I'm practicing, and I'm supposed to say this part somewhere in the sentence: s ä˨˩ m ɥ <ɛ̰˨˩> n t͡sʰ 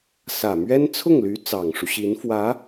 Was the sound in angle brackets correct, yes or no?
no